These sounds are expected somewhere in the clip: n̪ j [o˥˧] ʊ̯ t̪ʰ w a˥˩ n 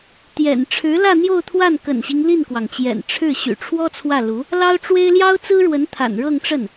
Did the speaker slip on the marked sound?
no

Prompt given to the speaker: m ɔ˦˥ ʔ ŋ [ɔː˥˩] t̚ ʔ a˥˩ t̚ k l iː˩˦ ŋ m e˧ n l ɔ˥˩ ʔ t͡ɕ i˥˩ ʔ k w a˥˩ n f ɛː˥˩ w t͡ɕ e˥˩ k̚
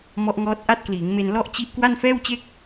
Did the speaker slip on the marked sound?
yes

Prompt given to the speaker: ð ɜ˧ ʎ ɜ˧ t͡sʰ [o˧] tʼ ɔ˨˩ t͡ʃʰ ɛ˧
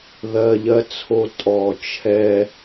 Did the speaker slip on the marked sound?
no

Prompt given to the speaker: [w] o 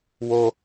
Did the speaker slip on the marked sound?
no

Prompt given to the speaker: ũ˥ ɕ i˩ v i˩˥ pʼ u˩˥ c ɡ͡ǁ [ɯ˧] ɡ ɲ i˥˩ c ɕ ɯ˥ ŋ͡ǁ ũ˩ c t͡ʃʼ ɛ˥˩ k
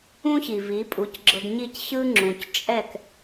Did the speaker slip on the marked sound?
yes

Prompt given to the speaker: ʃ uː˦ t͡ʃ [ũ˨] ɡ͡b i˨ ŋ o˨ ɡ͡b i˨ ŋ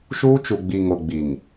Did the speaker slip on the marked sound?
yes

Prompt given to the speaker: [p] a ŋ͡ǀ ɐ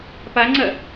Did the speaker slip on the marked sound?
no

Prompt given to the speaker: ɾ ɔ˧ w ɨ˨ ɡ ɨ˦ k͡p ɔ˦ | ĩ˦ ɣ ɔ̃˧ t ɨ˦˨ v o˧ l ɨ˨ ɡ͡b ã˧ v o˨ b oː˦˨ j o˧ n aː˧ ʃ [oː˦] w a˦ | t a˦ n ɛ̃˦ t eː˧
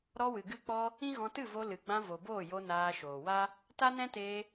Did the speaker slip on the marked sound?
yes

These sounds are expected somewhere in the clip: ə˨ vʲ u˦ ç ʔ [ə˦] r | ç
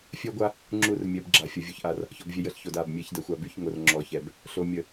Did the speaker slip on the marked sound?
yes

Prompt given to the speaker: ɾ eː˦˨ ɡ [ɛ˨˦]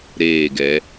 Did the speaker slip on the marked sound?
no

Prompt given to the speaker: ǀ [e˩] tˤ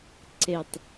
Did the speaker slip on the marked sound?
no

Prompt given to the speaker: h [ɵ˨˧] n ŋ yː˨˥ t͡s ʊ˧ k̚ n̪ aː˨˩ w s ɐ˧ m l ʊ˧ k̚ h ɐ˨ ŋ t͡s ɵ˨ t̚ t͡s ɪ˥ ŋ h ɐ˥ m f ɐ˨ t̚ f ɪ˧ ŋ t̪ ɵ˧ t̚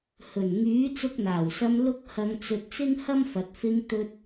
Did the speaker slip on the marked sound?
yes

